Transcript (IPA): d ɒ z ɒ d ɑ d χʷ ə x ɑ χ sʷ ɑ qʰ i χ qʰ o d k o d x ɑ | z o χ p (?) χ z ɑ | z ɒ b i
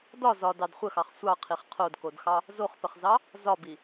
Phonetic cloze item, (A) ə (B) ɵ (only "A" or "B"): A